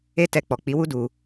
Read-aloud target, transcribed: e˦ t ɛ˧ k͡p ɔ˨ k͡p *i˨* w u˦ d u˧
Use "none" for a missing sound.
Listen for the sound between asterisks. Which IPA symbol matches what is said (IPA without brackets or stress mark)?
i˨˦